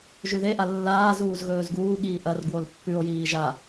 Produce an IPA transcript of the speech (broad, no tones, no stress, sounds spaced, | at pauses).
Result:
ʒ ʉ ð e ʔ a lː aː z uː z ɣ ɵː z ɡ uː ɠ iː ʔ ɐ r ɡ w o l pː ʉ o̯ j iː ʒ a